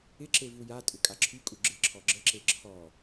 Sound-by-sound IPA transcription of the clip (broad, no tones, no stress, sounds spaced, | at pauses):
ɪ ǁ e v u j a tʼ ʏ kʼ a ǁʰ y kʼ u ɡ͡ǁ ɪ ǁʰ ɔ ɡ͡ǁ ə ǁ e ǁʰ ɔ